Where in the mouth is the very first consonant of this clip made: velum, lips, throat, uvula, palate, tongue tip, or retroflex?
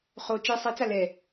uvula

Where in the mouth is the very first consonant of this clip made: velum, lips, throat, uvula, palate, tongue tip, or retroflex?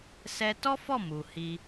tongue tip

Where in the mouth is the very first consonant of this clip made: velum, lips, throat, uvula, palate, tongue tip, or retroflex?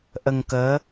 throat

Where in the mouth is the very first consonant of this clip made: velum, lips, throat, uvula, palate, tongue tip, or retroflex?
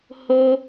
throat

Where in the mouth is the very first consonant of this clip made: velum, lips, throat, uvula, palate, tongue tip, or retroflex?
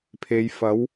lips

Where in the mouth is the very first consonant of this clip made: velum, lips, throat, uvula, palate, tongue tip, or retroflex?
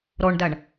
tongue tip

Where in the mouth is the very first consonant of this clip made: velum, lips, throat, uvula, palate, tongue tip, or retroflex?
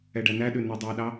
retroflex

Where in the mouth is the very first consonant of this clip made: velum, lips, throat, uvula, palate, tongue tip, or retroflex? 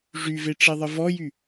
retroflex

